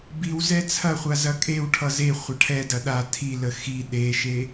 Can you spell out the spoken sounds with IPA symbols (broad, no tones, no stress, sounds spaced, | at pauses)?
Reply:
b i w z ɛ t͡sʰ ɐ χʷ a z ɐ kʼ e w ʈʰ ʌ z e χʷ ɐ ʈʰ ɛ d ɐ ɗ a tʰ i l ə x i ɗ e ʃ e